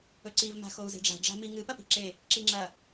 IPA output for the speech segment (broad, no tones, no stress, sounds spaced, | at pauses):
ɵ ǀ i v m a̤ x o u̯ z e̤ ɖ͡ʐ a̤ ɖ͡ʐ a̤ m i ŋ ɨ p ɐ p i̤ ǁ e | ǁ i ŋ͡ǁ ɐ